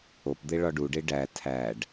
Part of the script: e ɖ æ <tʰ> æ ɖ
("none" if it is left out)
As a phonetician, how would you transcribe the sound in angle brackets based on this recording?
tʰ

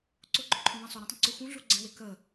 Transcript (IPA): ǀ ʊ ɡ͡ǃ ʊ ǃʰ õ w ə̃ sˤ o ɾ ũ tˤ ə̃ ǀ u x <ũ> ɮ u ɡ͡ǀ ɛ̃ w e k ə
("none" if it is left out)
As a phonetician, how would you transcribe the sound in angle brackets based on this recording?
ũ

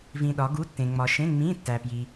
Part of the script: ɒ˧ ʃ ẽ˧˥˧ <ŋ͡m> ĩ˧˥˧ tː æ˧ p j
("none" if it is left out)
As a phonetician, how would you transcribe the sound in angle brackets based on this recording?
ŋ͡m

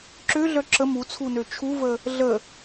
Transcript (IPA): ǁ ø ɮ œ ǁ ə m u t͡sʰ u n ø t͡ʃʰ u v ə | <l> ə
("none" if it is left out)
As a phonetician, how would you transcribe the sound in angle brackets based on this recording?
ɮ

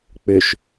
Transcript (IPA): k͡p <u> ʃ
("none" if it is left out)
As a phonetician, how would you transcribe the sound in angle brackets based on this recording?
ʏ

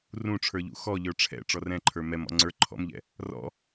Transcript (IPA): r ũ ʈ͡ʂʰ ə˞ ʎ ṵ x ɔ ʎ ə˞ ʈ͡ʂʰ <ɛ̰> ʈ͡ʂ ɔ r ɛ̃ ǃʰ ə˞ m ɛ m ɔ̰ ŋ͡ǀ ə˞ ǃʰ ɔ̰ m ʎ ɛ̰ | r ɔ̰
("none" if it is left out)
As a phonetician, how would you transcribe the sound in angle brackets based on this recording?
ɛ̰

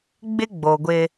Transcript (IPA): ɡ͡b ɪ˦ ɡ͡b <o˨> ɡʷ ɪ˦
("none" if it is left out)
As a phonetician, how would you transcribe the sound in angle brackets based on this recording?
o˨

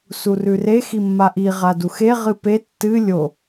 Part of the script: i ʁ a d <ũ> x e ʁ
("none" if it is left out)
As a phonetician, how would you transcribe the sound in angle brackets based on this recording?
u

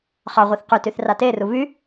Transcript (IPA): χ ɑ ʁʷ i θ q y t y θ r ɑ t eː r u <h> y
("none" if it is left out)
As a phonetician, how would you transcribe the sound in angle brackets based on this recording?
β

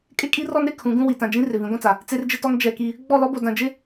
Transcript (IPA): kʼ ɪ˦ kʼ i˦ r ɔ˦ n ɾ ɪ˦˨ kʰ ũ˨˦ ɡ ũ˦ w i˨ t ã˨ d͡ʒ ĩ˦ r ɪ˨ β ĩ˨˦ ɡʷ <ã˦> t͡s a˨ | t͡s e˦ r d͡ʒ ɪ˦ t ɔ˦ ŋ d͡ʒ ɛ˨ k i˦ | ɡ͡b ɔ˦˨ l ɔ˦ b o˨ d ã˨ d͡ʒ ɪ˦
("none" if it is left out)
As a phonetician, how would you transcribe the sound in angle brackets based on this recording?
ã˦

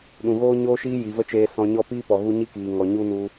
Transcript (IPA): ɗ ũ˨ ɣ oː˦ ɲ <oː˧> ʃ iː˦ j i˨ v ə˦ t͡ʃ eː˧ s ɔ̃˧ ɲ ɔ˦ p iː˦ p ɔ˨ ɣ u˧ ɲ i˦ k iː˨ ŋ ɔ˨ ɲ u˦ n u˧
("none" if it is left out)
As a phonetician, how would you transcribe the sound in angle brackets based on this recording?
oː˦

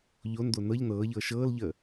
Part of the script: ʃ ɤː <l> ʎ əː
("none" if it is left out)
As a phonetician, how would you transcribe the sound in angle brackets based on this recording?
l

